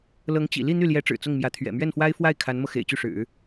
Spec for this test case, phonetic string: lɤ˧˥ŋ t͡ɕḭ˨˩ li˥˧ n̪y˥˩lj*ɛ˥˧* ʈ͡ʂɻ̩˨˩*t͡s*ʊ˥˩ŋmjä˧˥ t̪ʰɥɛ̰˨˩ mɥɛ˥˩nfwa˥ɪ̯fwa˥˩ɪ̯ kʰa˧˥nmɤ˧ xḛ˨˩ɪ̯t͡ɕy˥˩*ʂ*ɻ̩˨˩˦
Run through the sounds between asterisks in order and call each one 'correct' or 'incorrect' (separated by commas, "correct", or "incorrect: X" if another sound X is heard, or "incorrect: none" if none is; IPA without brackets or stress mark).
incorrect: ɛ˧˥, correct, correct